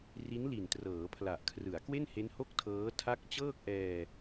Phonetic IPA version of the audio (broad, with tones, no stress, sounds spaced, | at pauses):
r i˦˥ n l i˨˩ n t r ɤː˩˦ pʰ l a˨˩ ʔ kʰ r ɯ˩˦ a̯ k w e˥˩ n h e˦˥ n h o˥˩ k̚ tʰ ɤː˦˥ tʰ a˦˥ k̚ t͡ɕ ɤː˥˩ k̚ ʔ ɛː˧